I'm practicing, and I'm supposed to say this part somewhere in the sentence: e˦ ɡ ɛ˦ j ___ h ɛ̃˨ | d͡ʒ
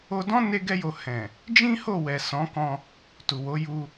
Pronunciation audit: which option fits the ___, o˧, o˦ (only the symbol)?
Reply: o˧